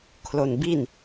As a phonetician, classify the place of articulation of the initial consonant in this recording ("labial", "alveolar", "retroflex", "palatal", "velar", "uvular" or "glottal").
velar